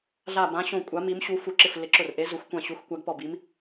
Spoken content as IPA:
ɮ a˧˩ b ã˨˦ ɕ õ˧˩ kʷʼ a˨˦ m i˨˦ m ɕ u˨˦ f u˨˦ ǁ ɪ˧˩ f l ɪ˨˦ ǁ ʊ˧˩ r ʔ e˨˦ z ʊ˨˦ xʷ kʷ ã˧˩ ɕ u˨˦ x kʷ a˨˦ ɡ p ɔ˧˩ b i˨˦ m

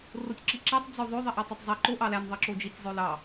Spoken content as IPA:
r o tʲ ǁ i ǁ æ tˤ d͡z ø ðˤ ø ðˤ i ʔ æ tˤ ø tˤ zˤ i ǃ o ʔ ɑ l æ n ðˤ i ǁ o d͡ʒ i tʲ zˤ ø l ɑ

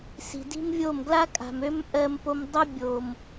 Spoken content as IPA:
s i̤˨ d i̤˦ m vʲ o˦˨ m ɡ l a˦ kʼ a̤˨ m ø˦ m ʔ ɜ˧ m p o˧ m dˤ ɜ˦ bʲ o˨ m

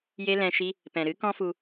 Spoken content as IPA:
j e˦ l ɛ̃˧ ʃ i˦ | p ɛ̃˨ ɾ ɨ˨˦ k ɔ̃˦ f u˧

